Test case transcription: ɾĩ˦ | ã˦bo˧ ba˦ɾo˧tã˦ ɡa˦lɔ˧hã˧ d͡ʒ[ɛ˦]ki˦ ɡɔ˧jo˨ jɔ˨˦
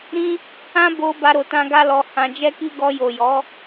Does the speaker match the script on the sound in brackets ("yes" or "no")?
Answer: yes